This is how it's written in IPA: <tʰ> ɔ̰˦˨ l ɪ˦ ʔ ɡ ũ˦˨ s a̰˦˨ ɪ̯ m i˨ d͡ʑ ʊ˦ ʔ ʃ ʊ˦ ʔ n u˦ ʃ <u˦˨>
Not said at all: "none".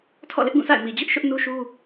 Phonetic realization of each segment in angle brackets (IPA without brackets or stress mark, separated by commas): tʰ, u˦